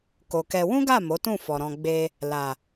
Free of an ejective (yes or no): yes